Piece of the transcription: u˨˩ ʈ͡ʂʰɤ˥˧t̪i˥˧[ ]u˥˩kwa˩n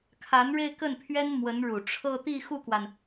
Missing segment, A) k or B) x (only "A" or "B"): B